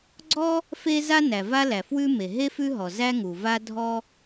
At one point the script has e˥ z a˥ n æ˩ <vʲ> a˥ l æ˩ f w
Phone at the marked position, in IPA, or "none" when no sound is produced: v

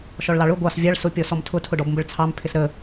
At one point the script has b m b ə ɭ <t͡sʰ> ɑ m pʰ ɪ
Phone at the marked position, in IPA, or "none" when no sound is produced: t͡sʰ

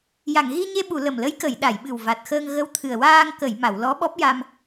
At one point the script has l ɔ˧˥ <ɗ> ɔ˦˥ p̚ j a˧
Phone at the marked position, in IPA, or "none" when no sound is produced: ɓ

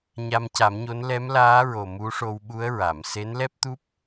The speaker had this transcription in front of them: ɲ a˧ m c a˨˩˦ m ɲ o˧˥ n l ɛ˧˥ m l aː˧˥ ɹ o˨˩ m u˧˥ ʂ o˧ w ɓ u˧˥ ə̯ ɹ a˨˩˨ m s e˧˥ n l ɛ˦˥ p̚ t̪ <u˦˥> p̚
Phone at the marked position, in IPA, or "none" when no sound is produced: u˦˥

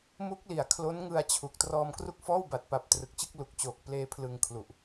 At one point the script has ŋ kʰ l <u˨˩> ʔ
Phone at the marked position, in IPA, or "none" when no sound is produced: u˨˩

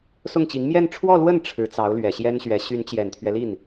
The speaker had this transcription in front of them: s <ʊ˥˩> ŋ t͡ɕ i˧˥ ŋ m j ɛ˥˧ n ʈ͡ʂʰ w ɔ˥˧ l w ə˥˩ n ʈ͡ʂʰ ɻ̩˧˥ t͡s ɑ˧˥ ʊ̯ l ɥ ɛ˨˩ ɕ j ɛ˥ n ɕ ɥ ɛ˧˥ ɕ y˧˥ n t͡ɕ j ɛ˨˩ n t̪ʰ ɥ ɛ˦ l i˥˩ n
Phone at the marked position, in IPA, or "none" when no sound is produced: ʊ˥˩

